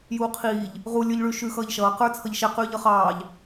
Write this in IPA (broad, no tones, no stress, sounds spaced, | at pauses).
j uː qʰ iː ʎ | ʁ u lʲ ə˞ ʎ ɭ ʉ ʃ ʉ x ʌː ʎ ʃ ʌː q ə˞ t͡sʰ ʌ ʎ ʃ ɛ q ʉː ʎ ʌ χ ɑː ʎ